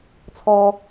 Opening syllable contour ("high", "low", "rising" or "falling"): high